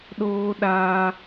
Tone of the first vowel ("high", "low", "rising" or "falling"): high